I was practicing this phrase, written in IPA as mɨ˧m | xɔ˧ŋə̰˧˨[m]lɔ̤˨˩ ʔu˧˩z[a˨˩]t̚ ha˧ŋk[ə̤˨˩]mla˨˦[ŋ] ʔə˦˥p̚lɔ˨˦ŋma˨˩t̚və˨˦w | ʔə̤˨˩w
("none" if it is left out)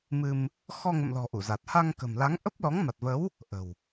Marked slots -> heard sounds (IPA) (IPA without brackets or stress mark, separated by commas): m, a˨˩, ə̤˨˩, ŋ